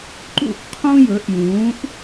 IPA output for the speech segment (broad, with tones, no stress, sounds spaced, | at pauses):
ǃ ṵ˦˨ ʔ qʰ ũ˦ j ɵ˨˦ ʔ j ũː˨˦ ʔ